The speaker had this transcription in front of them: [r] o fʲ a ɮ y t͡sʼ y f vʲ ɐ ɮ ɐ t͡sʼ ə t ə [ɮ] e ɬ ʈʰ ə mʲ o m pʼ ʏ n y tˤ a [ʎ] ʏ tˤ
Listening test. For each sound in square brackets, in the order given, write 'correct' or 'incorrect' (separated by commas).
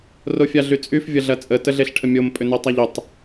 correct, correct, correct